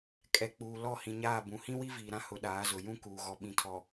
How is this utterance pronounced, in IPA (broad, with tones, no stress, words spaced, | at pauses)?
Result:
kʼɛ˨k͡puː˨ lɔ˦˨hĩ˨ɲaː˦˨bũ˨ hĩ˦wi˦viː˨ɾã˦ hʊ˨˦ɗaː˨˦zʊ˨ jũ˦kuː˨ɣɔ˨ ɓĩ˨tʰɔ˨